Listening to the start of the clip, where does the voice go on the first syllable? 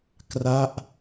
falling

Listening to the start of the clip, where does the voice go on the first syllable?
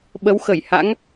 rising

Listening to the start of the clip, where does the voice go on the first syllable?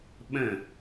falling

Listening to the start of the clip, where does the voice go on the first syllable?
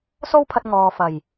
high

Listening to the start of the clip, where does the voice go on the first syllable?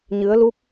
rising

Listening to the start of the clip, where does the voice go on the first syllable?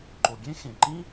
low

